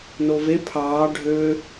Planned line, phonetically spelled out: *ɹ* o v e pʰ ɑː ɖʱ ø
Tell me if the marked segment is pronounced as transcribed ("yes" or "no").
no